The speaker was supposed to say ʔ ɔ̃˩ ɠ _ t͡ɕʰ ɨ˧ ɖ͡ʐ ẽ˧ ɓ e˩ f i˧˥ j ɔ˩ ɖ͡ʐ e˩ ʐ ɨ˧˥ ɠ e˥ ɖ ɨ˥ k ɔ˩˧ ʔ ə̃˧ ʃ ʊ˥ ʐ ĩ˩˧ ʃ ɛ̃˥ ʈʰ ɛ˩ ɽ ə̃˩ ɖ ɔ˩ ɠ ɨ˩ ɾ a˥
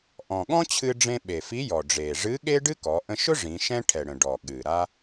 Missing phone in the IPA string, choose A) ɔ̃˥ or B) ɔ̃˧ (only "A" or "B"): A